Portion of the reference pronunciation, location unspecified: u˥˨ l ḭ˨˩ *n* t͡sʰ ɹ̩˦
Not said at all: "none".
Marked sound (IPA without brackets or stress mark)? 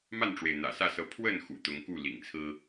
ŋ